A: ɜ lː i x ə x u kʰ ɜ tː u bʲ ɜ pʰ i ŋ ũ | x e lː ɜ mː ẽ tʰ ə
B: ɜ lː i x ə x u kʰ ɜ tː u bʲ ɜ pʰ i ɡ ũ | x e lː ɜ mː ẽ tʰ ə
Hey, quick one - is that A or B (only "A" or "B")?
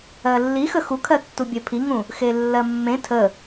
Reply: A